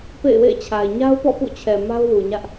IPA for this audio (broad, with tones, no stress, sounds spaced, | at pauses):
p ḛ˦˨ ɪ̯ w ḛ˦˨ ɪ̯ t͡ɕʰ a˨ ɪ̯ ɲ a˦ ʊ̯ p ɔ̰˦˨ p ṵ˦˨ t͡ɕʰ ɛ˨ m a˦ ʊ̯ w u˨ ɲ ä˦ ʔ